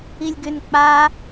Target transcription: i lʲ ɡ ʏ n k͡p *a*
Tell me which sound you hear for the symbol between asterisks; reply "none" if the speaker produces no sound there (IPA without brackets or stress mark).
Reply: a